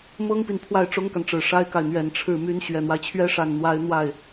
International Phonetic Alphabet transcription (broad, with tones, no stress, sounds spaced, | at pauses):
m ɤ˥ ŋ p i˨ n pʰ w a˥˩ ɪ̯ ʈ͡ʂ ʊ˥ ŋ k a˨ n ʈ͡ʂ ɻ̩˨˩ ʂ a˥ ɪ̯ k a˨ ɪ̯ n̪ ɥ ɛ˨˩ n ʈ͡ʂʰ ɻ̩˥˩ m y˧˥ n ɕ ɥ ɛ˨˩ n̪ w a˦ ɪ̯ t͡ɕʰ ɥ ɛ˥ ʂ a˥˩ n n̪ w a˥ ɪ̯ n̪ w a˥˩ ɪ̯